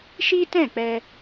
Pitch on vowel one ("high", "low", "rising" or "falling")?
high